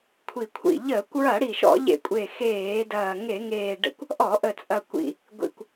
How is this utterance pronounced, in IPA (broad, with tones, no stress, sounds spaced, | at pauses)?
kʷʰ i˨˩ kʷʰ ḭ˨˩ ʎ əː˧˩˧ kʷ ɹ ɐ˧˩˧ ɽ i˨˩ ʃ ɔ̰˧˩˧ ʎ ḛ˧˩˧ kʷʼ e˨˩ x eː˧˩˧ d ɐː˨˩ ŋ e˧˩˧ ŋ eː˨˩ ɖ ə̰˧˩˧ kʷ | ʔ ɔ˧˩˧ ʔ ə˨˩ t͡sʼ ɐ˨˩ kʷ ḭ˨˩ | ɡʷ ḭ˨˩ kʷ